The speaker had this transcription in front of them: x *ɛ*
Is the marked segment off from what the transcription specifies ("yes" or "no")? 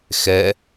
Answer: no